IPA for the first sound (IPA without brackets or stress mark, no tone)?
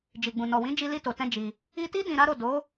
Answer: d͡ʒ